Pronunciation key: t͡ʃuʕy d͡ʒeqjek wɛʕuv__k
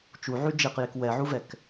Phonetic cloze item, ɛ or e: ɛ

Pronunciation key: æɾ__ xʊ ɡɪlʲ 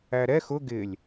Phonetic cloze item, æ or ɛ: ɛ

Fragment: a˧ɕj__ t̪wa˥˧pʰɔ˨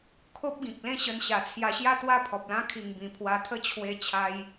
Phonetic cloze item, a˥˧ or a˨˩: a˥˧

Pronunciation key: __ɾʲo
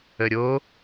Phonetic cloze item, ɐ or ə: ə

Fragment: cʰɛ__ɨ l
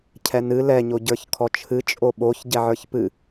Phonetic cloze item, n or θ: n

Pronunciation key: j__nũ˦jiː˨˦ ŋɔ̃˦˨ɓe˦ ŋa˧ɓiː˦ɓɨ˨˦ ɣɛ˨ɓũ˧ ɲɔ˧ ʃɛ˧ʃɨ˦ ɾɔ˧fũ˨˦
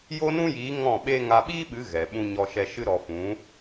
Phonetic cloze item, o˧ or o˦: o˦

